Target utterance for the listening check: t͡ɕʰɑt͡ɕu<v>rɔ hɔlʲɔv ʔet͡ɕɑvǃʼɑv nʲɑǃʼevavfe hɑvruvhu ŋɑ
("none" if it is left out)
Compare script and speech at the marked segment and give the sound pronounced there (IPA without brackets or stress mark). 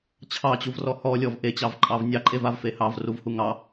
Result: v